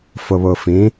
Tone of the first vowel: low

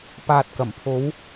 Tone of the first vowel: low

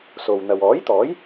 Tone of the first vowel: low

